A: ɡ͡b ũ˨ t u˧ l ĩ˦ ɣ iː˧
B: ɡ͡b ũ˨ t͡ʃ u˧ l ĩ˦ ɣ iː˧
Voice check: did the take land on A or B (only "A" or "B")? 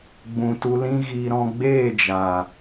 A